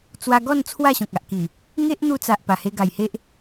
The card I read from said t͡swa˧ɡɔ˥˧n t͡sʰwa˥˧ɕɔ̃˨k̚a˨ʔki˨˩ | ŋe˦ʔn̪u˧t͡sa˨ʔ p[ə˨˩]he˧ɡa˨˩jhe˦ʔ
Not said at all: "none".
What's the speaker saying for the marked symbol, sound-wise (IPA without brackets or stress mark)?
a˨˩